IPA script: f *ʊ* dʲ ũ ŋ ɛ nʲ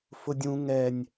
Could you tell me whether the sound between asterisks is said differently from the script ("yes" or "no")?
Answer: no